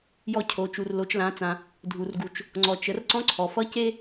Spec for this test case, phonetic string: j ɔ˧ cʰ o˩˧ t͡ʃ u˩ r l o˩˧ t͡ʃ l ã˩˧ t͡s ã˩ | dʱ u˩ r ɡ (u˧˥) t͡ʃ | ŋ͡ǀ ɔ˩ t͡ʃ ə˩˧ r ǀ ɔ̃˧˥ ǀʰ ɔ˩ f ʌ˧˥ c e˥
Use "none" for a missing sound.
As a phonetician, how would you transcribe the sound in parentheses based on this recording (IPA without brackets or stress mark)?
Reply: u˩